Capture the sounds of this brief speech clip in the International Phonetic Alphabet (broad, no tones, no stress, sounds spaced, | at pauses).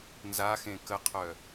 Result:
n z a x ẽ k ə qʰ œ